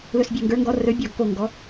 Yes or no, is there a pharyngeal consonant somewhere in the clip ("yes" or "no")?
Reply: no